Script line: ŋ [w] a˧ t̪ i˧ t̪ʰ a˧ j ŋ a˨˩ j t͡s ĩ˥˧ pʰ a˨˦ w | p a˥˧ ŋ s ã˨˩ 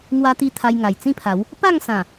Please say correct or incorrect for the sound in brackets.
correct